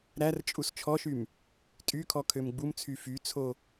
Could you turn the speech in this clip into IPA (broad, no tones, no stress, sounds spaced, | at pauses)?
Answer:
ɾ æ r t͡ʃʼ u s t͡ʃʰ ɔ ʃ y m | tʼ y kʰ ɔ kʰ ø m ɡ͡b u m t͡sʰ y f y t͡sʰ o